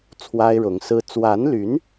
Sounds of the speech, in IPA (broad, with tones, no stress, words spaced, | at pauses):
t͡sʰwa˥ɪ̯ɻʊ˧˥ŋsɹ̩˥ t͡swa˧˥nly˧˥n